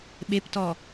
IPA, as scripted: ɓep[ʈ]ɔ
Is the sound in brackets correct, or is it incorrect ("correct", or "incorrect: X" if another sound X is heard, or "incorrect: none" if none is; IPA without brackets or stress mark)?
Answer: incorrect: t